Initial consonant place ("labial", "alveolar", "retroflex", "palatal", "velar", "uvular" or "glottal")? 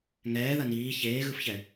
velar